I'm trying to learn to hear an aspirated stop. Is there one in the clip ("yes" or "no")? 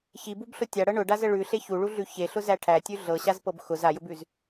yes